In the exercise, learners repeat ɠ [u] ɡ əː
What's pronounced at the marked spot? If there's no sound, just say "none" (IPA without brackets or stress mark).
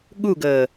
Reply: u